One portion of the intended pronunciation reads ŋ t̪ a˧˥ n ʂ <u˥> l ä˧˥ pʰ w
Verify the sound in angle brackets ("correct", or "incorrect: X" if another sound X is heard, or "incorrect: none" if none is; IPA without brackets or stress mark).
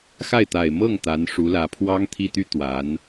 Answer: incorrect: u˧˥